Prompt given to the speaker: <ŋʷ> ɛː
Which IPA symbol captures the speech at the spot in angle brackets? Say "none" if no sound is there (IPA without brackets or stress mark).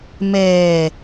m